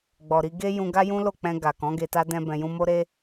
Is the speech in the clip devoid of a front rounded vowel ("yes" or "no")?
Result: yes